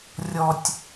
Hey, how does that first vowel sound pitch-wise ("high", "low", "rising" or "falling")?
low